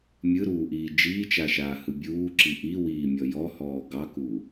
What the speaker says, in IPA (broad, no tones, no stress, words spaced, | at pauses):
mʲɯɾuːʔiː d͡ʒiːt͡ʃaʃaːhɯ bʲuːǁi ʔiwiːmʲɔ jɔhɔː ɡɑku